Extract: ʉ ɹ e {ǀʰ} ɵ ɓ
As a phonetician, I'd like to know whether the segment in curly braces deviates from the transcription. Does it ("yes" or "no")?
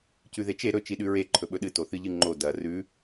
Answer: yes